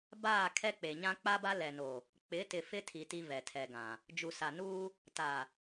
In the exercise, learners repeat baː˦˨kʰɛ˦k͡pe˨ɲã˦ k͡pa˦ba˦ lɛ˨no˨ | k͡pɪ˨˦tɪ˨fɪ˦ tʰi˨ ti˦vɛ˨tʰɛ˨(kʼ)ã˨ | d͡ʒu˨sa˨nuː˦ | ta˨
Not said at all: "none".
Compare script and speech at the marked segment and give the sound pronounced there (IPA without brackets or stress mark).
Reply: ɡ